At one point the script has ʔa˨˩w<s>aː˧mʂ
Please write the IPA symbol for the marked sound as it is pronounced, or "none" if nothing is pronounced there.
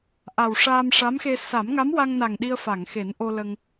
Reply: ʂ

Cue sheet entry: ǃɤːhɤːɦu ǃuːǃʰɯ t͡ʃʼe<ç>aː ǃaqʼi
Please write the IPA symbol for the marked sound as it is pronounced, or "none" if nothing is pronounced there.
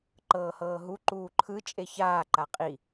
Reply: ç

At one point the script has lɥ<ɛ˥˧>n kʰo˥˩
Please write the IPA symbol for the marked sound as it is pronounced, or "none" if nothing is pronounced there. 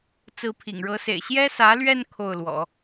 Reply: ɛ˥˧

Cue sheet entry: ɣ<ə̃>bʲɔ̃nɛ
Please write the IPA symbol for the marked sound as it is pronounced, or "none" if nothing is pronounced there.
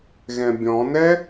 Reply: ɛ̃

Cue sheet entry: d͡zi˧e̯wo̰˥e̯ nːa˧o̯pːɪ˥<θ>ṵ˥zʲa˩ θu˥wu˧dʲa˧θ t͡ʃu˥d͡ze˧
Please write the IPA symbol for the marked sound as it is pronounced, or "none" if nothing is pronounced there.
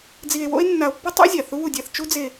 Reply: tˤ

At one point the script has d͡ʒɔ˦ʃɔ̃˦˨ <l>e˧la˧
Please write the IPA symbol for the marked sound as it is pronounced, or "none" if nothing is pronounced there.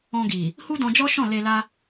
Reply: l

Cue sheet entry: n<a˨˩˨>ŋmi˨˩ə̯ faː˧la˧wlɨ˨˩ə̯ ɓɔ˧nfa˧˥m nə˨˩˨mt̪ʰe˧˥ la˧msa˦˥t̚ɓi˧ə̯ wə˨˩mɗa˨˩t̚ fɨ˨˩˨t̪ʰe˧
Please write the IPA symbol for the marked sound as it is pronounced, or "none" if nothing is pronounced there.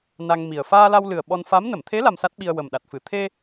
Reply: a˧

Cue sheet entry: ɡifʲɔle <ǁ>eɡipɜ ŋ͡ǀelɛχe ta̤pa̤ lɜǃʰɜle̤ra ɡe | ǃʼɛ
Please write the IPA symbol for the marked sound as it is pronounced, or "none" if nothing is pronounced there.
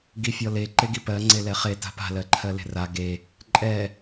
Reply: ǃ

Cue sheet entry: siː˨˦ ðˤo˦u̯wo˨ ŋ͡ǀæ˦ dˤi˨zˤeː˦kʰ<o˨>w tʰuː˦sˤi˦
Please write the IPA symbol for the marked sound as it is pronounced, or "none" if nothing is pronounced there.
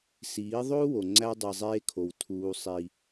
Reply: o˨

